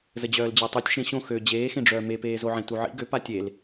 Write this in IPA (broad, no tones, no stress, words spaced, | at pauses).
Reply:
zəd͡ʑœːld͡ʑɛtˤitʲ ʃẽɕõ xø d͡ʑeːxẽɖ͡ʐœː mepeːzoʕẽ tuʕḭ ɡø patʲel